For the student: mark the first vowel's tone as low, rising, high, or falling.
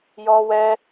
high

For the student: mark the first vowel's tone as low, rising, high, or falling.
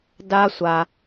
high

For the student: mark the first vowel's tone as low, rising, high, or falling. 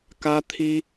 high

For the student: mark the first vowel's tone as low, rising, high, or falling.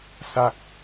falling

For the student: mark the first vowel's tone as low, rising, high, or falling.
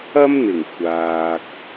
high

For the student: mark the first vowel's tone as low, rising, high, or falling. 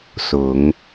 rising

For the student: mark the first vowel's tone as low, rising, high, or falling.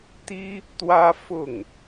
high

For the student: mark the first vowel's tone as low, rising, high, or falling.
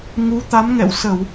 rising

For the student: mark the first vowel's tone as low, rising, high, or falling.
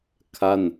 falling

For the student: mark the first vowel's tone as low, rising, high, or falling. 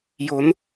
rising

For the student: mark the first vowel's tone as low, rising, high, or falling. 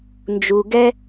low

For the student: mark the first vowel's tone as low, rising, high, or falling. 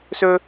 high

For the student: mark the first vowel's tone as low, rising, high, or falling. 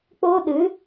high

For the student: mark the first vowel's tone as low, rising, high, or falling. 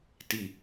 low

